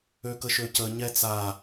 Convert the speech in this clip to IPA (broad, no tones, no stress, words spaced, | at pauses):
økəʃøcə ɲɛt͡sa